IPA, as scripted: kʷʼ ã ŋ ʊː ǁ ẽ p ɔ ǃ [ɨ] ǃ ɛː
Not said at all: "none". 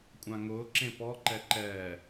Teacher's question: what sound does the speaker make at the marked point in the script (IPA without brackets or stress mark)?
ɛ